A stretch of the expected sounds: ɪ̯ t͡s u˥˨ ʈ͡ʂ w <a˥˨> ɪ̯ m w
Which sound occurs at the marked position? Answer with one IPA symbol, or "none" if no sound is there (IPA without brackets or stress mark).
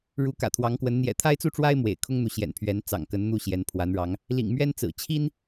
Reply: a˦